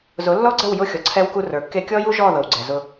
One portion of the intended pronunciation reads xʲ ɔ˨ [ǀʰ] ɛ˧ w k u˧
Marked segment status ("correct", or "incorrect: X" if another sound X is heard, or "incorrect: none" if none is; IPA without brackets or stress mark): correct